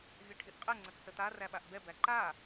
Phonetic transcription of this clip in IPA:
vʲ ɘ ʈʰ i ʔ qʼ ɘ ŋ͡ǀ ɘ k s ə t̪ a r æ ɓ a ʔ b ɛ b æ ǃ a

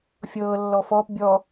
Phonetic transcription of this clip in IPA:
fʲ ɤː lː ɔ f ɔː p bʲ ɔ

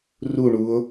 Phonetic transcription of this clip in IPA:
r u ɳ u o̯

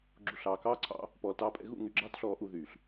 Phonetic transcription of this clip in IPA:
ɡ͡ǁ u˨ ɬ ɑː˨ k ɑː˦ ǀʰ ɑ̰˧ | p ɔː˨ l t ɑː˧ pʼ ɛ̰˧ ɣ ṵ˦˨ ŋ y˨ ɡ͡ǁ ɑː˧ t ɬ ɔː˨ ʔ u˦˨ ð yː˨ ɬ

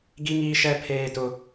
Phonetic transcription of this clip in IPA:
ɡ i˦ ŋ iː˦ ʃ ɛ˦ pʰ eː˦ t ʊ˦

